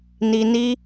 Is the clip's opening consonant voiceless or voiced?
voiced